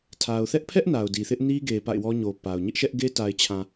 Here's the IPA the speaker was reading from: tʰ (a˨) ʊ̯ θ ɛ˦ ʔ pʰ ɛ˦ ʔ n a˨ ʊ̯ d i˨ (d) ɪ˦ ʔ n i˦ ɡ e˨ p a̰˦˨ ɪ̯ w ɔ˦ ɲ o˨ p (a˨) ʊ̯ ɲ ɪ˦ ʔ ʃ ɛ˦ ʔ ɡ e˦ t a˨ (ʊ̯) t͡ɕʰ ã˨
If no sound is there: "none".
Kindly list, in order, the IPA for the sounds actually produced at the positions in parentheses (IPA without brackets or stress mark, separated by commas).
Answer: a˨, θ, a˨, ɪ̯